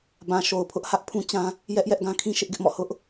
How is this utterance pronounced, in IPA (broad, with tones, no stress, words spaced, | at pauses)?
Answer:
bã˨ʃo˨ʊ̯pʰʊ˦ʔhä˦ʔ pʰũ˦t͡ɕã˦ | jɛ˦ʔ jɛ˦ʔɡã˦kʰĩ˦ ʃɪ˦ʔɡɪ˦ʔmɔ̰˦˨ hʊ˦ʔ